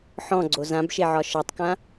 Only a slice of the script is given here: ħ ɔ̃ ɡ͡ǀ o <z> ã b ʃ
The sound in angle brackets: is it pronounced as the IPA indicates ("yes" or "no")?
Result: yes